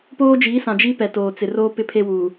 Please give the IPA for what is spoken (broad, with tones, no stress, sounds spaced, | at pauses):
p oː˦ d͡ʒ iː˨˦ s ã˨ d͡ʒ i˦ p ɛ˨ t oː˨ t͡s ɪ˨ r oː˦ p ɪ˦ pʰ e˦ w uː˨